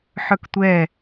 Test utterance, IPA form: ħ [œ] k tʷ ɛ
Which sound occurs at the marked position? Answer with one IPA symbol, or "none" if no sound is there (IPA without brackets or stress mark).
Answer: œ